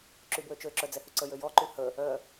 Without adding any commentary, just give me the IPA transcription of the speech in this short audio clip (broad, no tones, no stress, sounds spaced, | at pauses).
ǁ y b w ø t͡ʃ ø ǁ œ d͡z ɛ h y ǀ ə j ø j ɔ ǃ y h ə | œ